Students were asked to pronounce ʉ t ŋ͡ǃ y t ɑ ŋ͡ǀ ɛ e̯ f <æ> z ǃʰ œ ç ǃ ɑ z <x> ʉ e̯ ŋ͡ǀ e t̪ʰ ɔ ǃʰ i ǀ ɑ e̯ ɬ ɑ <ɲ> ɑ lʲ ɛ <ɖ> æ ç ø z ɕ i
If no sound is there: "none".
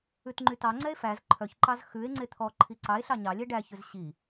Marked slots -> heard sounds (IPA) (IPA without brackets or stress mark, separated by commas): æ, x, ɲ, ɖ